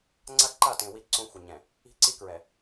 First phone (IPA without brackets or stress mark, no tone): ŋ͡ǀ